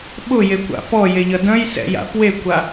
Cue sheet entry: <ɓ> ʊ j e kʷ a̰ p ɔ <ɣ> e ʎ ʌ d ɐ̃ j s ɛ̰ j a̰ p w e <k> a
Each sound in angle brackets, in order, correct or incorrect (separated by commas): correct, incorrect, incorrect